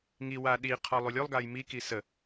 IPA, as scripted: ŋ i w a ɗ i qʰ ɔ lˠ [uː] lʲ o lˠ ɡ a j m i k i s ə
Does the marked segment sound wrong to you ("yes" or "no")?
yes